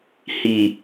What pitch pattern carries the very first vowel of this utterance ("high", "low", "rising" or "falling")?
low